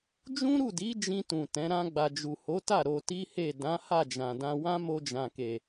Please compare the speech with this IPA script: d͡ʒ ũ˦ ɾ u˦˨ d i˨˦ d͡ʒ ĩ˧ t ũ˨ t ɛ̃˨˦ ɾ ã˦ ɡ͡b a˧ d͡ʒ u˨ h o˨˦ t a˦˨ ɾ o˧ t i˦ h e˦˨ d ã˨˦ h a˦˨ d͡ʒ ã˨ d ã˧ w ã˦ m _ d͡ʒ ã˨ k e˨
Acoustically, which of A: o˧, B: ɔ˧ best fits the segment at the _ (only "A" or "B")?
A